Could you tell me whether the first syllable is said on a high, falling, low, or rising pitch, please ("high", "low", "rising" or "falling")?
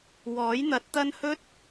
rising